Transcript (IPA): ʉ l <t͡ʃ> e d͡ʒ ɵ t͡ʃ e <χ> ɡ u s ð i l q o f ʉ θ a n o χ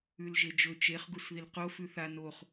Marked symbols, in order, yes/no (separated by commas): no, yes